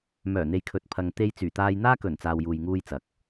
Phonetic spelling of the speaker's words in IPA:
m œː˨˩ n̪ e˨ j kʰ ɵ˨ t̚ pʰ ɐ˨ ŋ t̪ e˧ j t͡s yː˨˩ t̪ aː˧ j n̪ aː˥ k ɵ˨˩ n t͡s aː˨ w j uː˨ j ŋ uː˧ j t͡s ɐ˨ k̚

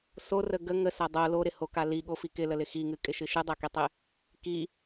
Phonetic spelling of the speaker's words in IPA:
s o r ə ɡ ə ŋ ə s a dˤ o l o ɾ ɪ h o k a l i ɠ o f i k ɪ l ə l ɪ x i ŋ ɨ kʼ ɪ ʃ ɨ ʃ ɨ dˤ a k i tˤ ɪ | k i

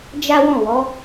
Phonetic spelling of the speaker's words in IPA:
d͡ʒ a˦ w ɔ̃˦˨ w ɔ˨˦

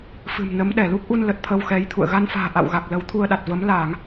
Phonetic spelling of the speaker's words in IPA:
f ɨ̤˨˩ m n ə˨˦ m ɗ ɛ˧˩ l u˦˥ k̚ ʔ u˧ n l ə˨˩ t̚ t̪ʰ ə˧ w x ɛ˨˦ j t̪ʰ ṵ˧˨ ə̯ ɣ a˧ n f a̤ː˨˩ ʔ a̰˧˨ w ɣ a˨˩ k̚ l ə˨˦ w t̪ʰ u˧ ə̯ ɗ a˨˩ t̚ v ə˨˦ m l aː˧˩˨ ŋ

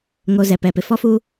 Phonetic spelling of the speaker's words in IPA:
ŋ o˨ z ɛ˨ p ɛ˨ p ɪ˨ f ɔ˦ f uː˦

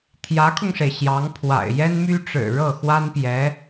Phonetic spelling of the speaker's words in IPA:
t̪ʰ j ä˧˥ kʰ ʊ˧ ŋ ʂ e˩ ɪ̯ ɕ j ɑ˧˥ ŋ pʰ w a̰˨˩ ɪ̯ j ɛ˥ n m y˥ ʈ͡ʂ ɻ̩˨˩ ɻ ɤ˥˩ x w a˥ n p j ɛ˧˥

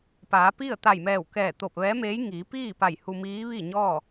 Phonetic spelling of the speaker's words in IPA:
p aː˩˧ p i˥˨ ə̯ t̪ a˧˩ j m ɛː˧˩ w k ɛː˧˩ t̪ o˧˩ p̚ ʋ ɛː˧˥ m eː˧˥ j ŋ iː˩˧ p iː˥˨ p a˧˩ j h u˧ m iː˧˥ ʋ i˥˨ ɲ ɔː˥˨

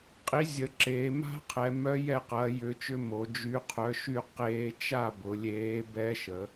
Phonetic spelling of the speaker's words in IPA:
qʼ i˨˥ zʲ ə˩˧ ǁ eː˩˧ m a̤˦˥ qʰ ɛ˩˧ m œ˦˥ j ɛ˥˨ q ɐː˨˥ j ʏ˨˥ t͡ʃ ʏ˦˥ m o˩˧ d͡ʒ y˨˥ qʰ œ˨˥ ʃ y˥˨ q eː˦˥ t͡ʃ a˥˨ b ʊ˩˧ lʲ eː˨˥ b ɛ˦˥ ʃ ə˩˧

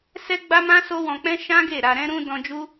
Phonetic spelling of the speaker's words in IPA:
s ɛ˦ ɡ͡b a˦ m ã˦ s o˦ w ɔ̃˧ k͡p ɛ̃˦ ʃ ã˦ ɡ e˦˨ ɾ a˧ ɾ ɛ̃˦ ɾ ũ˧ d ɔ̃˧ d͡ʒ u˦

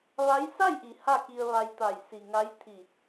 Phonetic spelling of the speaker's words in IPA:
ʋ a˧˥ j s a˥˨ j ʔ i˩˧ h a˥˨ k i˧ ə̯ ʋ a˧ j t̪ a˧˩ j s i˩ ŋ a˧˥ j t̪ʰ i˧˩

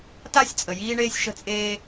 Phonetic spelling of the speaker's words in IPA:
t a˥ sʲ t͡sʼ ə˩ j iː˥ ɳ eː˥ sʲ ʃ ə̤˥ t͡sʼ eː˥

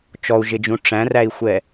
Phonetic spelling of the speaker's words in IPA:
t͡ʃ ɔ u̯ ʒ ɪ d͡ʒ ũ ʈ͡ʂ æ̃ r æ i̯ xʷ ɛ

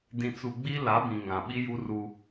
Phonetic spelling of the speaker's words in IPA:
d ĩ˨ t͡s u˨ ɡ͡b i˦ l a˨˦ b ĩ˨ ŋ ã˨ ɓ i˦ j u˦ r u˦

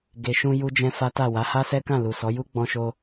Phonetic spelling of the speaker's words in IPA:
ɡ e˨ ʃ ũ˧ j u˦ d͡ʒ ɛ̃˦ f a˦ t a˦˨ w a˨˦ h a˦ s ɛ˦ k ã˦˨ l u˨ s ɔ˨˦ j u˦ ɡ͡b ɔ̃˧ ʃ o˧

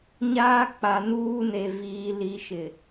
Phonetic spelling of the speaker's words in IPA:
ɲ aː˦ k͡p a˨ n uː˦ n e˨ v iː˨ l i˨ ʃ ɪ˨

